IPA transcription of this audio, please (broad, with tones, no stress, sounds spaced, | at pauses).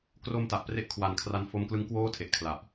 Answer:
k r o˧ m t a˨˩ ʔ p r e˥˩ ʔ kʰ w a˨˩ n kʰ r a˧ n f o˦˥ m k l ɯ˦˥ ŋ k w oː˥˩ tʰ e˨˩ ʔ kʰ l a˨˩ ʔ